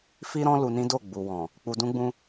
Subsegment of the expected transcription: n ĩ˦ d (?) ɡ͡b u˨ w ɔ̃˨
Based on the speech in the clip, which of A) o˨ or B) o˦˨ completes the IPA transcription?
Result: B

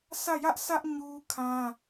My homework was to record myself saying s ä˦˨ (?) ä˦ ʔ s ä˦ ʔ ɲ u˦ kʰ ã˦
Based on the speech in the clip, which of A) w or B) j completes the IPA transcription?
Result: B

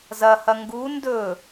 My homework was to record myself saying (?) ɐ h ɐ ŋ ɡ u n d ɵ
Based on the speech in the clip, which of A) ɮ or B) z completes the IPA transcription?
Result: B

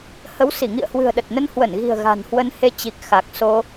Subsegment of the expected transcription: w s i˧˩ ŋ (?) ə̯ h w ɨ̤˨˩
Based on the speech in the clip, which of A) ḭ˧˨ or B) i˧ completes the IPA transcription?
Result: A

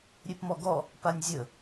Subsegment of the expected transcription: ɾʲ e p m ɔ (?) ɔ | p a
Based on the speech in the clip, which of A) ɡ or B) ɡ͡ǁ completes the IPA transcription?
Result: A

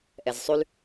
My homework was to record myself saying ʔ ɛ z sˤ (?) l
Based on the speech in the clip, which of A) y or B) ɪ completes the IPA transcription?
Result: A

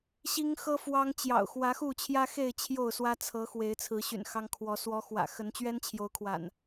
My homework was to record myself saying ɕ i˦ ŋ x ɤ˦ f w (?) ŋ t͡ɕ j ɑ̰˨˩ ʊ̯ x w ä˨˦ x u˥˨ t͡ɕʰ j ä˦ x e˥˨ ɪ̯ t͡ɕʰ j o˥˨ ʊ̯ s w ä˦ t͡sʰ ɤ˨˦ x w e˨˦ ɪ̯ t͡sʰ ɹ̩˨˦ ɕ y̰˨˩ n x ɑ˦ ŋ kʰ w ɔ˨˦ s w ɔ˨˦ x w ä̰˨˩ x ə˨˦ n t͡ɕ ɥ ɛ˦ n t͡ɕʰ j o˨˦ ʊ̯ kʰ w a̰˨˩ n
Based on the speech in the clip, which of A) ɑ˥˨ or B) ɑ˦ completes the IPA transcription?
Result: B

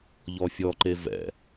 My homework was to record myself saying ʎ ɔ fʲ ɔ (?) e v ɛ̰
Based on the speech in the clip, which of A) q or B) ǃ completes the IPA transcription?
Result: B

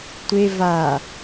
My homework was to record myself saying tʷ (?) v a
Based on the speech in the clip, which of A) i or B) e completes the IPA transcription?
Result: B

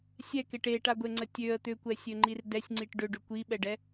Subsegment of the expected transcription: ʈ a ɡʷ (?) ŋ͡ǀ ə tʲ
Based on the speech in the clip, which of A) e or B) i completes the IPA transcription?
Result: A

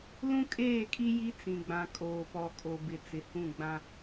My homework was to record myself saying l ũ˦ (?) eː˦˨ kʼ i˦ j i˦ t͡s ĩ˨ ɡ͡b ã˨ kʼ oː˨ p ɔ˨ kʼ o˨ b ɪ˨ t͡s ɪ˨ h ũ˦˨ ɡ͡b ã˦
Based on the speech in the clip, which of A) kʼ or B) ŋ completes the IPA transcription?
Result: A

